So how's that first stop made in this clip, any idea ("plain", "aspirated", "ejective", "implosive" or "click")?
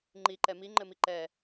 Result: click